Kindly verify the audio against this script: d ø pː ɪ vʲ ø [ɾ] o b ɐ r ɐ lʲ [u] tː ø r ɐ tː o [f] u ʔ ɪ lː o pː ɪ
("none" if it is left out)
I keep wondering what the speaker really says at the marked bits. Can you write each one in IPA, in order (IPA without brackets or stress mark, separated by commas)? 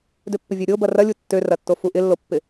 ɾʲ, u, f